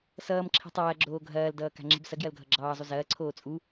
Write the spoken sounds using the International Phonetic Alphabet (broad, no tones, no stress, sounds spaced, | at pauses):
s ʌː m ǁʰ i̤ tˤ ɐː ɡ͡ǁ oː ɡʱ ɐː l d ʌː k a̤ ŋ͡ǁ i̤ b s ɐ ɡ j ɐ l ɡʱ ʌ ɡ͡ǁ ɑː zˤ u z ɐː ǀʰ oː t͡sʼ u